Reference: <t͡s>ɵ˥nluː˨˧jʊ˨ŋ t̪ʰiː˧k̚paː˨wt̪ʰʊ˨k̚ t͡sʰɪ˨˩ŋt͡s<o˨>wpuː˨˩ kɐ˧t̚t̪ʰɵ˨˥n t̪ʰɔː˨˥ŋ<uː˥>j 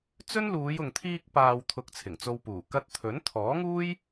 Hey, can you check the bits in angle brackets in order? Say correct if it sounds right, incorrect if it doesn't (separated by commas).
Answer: correct, incorrect, correct